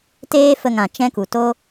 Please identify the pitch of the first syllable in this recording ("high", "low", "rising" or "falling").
high